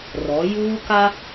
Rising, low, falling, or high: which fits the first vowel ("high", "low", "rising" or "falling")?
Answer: rising